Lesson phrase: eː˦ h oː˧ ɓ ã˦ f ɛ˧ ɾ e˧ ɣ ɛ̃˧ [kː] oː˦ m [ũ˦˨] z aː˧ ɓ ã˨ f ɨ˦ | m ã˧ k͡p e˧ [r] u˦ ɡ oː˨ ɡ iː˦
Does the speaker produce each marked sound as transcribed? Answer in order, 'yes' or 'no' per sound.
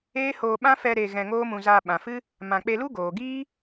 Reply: no, no, no

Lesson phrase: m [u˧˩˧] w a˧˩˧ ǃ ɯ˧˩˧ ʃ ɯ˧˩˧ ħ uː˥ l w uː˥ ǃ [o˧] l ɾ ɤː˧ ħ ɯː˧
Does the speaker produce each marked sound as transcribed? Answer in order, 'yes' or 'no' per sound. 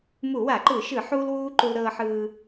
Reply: yes, no

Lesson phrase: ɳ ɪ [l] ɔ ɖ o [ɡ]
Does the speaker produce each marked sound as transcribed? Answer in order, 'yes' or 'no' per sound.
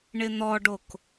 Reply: no, no

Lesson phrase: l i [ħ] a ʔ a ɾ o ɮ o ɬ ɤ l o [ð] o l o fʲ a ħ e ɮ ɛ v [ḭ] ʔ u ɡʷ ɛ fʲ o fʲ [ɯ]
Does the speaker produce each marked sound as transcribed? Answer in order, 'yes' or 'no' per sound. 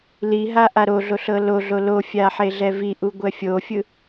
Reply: no, no, no, yes

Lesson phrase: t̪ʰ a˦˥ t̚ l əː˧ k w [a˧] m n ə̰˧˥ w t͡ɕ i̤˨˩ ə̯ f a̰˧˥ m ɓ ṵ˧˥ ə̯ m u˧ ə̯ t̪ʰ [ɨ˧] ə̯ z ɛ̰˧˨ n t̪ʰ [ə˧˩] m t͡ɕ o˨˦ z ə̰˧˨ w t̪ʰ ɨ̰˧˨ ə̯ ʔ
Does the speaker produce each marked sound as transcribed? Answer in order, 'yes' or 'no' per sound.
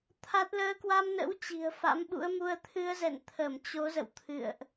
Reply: yes, yes, yes

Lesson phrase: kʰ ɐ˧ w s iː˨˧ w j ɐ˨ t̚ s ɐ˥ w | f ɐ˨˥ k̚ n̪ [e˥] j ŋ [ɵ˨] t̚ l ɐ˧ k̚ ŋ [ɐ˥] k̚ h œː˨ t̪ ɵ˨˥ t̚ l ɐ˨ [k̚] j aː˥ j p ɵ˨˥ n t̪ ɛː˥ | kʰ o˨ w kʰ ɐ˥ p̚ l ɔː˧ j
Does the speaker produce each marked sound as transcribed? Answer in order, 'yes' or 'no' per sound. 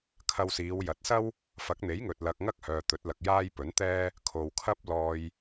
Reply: no, yes, yes, yes

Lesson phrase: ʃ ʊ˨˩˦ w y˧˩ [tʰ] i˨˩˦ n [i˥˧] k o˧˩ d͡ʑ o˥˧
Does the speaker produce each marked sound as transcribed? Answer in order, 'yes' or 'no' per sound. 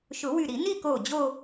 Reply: no, yes

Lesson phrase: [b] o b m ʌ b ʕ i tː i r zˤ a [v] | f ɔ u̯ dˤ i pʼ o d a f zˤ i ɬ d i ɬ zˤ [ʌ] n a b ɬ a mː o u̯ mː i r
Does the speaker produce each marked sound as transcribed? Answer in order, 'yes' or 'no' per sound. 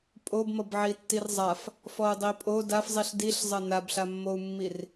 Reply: no, no, yes

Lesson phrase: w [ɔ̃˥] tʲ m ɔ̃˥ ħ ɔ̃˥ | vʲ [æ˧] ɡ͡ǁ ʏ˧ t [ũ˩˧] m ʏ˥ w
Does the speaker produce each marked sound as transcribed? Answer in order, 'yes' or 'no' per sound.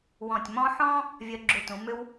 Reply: no, no, yes

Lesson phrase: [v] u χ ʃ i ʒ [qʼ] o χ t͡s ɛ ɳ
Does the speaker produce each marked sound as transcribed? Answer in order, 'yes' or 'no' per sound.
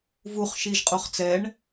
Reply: yes, yes

